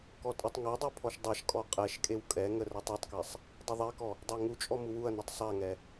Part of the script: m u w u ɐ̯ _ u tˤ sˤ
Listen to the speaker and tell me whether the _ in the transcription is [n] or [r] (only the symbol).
n